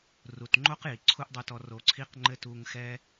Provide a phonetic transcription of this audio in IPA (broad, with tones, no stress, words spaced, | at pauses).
ru˨tŋ͡ǃo˦q ji˨ǀʰu˦ʔdˤu˧tɔ˧ ro˧ǀʰi˦qŋ͡ǃɘ˦ tu˧ŋxɛ˦